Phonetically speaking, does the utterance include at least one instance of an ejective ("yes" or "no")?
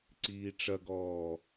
no